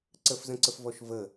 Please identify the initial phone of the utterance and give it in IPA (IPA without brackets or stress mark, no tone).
ǀ